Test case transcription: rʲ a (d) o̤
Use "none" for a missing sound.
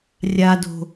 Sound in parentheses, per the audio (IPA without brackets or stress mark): d